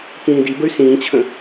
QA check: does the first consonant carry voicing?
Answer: no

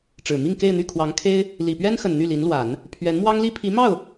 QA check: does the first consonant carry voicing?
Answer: no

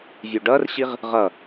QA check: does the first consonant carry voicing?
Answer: yes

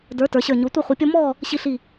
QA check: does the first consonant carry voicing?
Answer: yes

